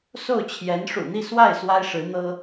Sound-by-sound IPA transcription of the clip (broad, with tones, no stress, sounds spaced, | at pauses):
s o˥˩ ʊ̯ t͡ɕʰ j ɛ˧˥ n ʂ ṵ˨˩ n̪ i˥˧ s w a˥˩ ɪ̯ s w a˥ ɪ̯ ʂ ɻ̩˧˥ n̪ ɤ˥